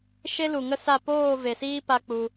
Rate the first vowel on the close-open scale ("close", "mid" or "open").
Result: mid